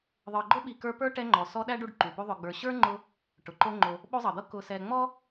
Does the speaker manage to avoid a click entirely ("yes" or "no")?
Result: no